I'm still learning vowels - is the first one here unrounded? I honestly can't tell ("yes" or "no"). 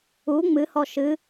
no